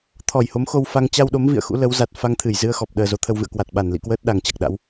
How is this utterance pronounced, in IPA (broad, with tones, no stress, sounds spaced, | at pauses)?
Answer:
t̪ʰ ɔ˧˩ j h o˨˦ m x o˧ w f a˧ ŋ t͡ɕ a˧ w ɗ o˨˦ m v ḭ˧˨ ə̯ x ṵ˧˥ l ə˨˦ w z a˨˩ t̚ f a˧ ŋ t̪ʰ ɨ˧˩ j z ɨ˧ ə̯ x ɔ˨˩ p̚ ɗ əː˨˩ z o˨˦ t̪ʰ ə˧ w v ɨ̰˧˨ ə̯ k w a˨˩ t̚ ɓ a˧˩ n l ḭ˧˨ k w əː˦˥ t̚ ɗ a˨˩ ŋ t͡ɕ a˨˩ k̚ ɗ a̰˧˥ w